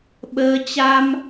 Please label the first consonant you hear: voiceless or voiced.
voiced